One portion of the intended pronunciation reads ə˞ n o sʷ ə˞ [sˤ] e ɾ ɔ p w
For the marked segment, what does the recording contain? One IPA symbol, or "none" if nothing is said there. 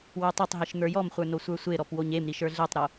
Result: sʷ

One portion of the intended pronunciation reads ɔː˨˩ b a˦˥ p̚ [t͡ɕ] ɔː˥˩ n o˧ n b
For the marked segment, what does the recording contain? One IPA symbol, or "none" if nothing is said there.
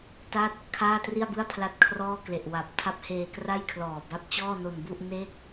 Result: t͡ɕ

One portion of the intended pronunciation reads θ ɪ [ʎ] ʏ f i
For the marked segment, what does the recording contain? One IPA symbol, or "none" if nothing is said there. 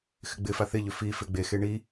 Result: ʎ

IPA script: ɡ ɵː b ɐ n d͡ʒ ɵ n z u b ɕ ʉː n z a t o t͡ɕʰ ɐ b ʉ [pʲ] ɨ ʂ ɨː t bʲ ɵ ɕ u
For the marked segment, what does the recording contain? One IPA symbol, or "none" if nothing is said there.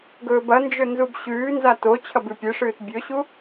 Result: pʲ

